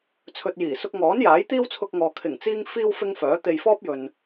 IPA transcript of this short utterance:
t͡sʰɵ˨t̚jiː˨˩sʊ˧k̚ŋɔː˨˥n jaː˨˥jt̪iː˥wt͡sʰʊ˧k̚ŋɔː˨ kʰɪ˨˩ŋt͡siː˧ŋ fiː˧w fɪ˥ŋfœː˨˥t̪e˧j fɔː˥p̚jɵ˨n

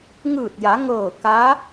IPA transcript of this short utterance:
ŋɯː˧˩t̚ja˩˧ŋɤː˧˩ ka˧˥

